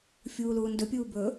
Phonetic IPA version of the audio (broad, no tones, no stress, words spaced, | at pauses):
fʲuːluːndɵpʲuː bɵ